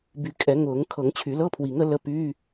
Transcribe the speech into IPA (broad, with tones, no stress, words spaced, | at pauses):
by˨˩˦kʼɛ˨˩˦ ŋʊː˨˩˦ŋkʰɤ˨˩˦ŋ t͡ɕʰy˨˩˦lɤ˧˥˧pʰwi˨˩˦ŋə˨˩˦ lə˧˥˧pyː˧˥˧